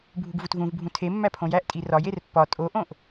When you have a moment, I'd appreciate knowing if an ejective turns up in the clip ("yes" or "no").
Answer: yes